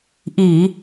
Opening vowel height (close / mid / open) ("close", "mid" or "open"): close